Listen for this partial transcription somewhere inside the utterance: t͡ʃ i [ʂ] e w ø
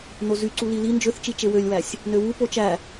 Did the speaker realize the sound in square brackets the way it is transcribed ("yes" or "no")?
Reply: no